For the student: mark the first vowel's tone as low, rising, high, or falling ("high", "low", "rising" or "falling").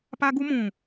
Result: high